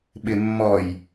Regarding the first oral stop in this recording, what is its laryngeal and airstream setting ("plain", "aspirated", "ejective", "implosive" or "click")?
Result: implosive